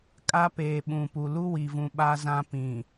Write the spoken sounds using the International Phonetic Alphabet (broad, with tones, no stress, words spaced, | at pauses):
kʼa˦ peː˨ɓũ˨pu˨ lu˦wi˨vũ˨ ɓa˦zã˦ pĩ˨